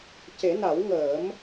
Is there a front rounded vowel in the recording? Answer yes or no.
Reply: no